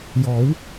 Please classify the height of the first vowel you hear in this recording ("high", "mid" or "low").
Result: mid